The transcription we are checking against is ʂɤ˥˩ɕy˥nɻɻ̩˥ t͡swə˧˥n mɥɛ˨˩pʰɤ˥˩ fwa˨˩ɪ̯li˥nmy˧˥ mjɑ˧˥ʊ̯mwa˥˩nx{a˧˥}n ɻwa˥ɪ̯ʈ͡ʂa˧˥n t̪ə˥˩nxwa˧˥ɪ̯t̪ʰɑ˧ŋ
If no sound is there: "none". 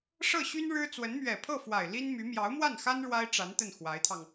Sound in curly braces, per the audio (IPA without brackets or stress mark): a˥